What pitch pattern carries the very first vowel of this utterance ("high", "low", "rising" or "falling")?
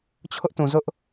high